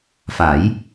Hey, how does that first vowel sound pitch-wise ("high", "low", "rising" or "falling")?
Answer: rising